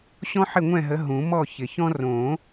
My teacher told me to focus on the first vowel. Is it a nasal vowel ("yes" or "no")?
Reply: yes